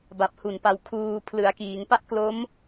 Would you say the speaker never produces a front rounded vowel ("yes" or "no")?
yes